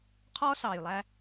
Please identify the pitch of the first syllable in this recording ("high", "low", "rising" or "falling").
high